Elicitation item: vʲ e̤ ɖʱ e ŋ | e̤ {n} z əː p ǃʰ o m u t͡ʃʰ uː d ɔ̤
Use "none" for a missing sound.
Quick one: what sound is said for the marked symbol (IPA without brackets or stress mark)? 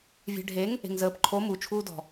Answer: ŋ